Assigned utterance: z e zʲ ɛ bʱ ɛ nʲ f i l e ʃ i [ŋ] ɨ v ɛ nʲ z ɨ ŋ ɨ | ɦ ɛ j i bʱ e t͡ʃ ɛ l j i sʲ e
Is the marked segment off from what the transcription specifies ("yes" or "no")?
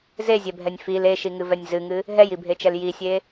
no